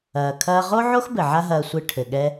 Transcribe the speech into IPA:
ɐː˩kʰɐː˧ ʁo˥ʕo˥xbɘ˩ ʕa˥ɦɐː˧sʷɨ˧ ʈʰɘ˩ɠɛ˧

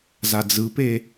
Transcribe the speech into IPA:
zad͡zɯpe

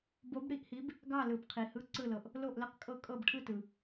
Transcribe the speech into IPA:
bo˧˥bɽi˦˨ʔhi˧˥b | ɡɑ˦˨lɯ˨b qʰi˨hɯ˧˥ ǀɯ˦˨lɤ˨ʔ | lo˦˨ʔlə˦˨qkʼɤ˦˨ kʼɤ˦˨bʈʰɯ˦˨tɯ˨

